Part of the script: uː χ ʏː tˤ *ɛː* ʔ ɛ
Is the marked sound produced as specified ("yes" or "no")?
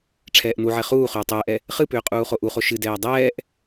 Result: yes